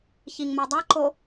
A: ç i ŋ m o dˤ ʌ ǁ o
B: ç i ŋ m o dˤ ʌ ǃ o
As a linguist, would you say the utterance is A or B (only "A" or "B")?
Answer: B